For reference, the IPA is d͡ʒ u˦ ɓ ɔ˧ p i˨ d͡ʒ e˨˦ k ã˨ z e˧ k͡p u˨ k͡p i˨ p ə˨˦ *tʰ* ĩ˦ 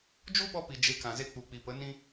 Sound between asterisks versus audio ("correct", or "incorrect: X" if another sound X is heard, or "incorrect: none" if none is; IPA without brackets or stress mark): incorrect: n